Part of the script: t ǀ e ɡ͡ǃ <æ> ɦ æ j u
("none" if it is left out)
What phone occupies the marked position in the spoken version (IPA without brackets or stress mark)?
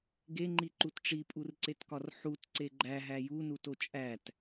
æ